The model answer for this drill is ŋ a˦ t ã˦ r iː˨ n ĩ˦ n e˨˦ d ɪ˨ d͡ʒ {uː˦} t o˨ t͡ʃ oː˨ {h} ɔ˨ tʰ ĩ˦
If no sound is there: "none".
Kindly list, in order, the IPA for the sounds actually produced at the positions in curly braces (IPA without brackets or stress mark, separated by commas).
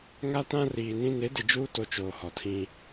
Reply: uː˦, h